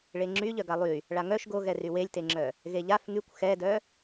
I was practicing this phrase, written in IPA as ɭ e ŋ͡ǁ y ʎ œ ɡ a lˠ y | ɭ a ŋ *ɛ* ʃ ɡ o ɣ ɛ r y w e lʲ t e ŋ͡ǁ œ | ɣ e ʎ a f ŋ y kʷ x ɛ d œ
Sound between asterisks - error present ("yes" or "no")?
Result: yes